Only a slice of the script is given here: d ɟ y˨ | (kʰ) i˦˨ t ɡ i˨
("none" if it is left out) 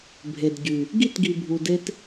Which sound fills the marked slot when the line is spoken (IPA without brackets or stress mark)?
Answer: ɡ